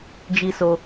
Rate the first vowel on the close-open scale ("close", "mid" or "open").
close